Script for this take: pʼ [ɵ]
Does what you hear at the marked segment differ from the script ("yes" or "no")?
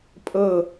yes